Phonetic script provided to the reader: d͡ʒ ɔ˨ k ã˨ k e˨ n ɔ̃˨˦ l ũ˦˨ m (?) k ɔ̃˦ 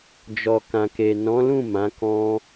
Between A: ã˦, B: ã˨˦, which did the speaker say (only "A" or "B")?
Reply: B